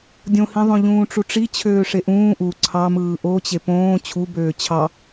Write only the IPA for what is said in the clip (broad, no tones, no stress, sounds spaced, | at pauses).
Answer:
dʲ õ h ĩ ðˤ õ ʎ ũː ʈ͡ʂ u ʈ͡ʂ i t͡ɕʰ øː ʂ e ʔ ũː ʔ u ǀʰ ɑ m ɯː ʔ o t͡ɕ e p õː t͡ɕʰ u b øː t͡ɕʰ ɑ